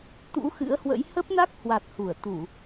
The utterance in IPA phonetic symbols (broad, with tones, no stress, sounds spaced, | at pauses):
t̪ ṵ˧˥ x ɨ̰˧˥ ə̯ h w ə̰˧˥ j h ə˦˥ p̚ n a˦˥ k̚ h w a˨˩ t̚ h u˧˩ ə̯ t̪ u˧˩˨